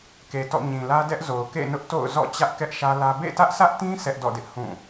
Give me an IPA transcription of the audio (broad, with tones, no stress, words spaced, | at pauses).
ke˨tɔ̰˦˨ ɲĩ˨lä˦dɛ˦ʔzo˨ʊ̯ kḛ˦˨nʊ˦ʔ to̰˦˨ʊ̯zɔ̰˦˨ t͡ɕä˦ʔkɛ˦ʔ ʃä˦lä˦ bḛ˦˨tä˦ʔsä˦ʔtĩ˦ sʰɛ˦ʔdɔ̰˦˨dɪ˦ʔ hũ˦˨